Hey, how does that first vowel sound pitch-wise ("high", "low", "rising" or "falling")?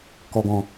low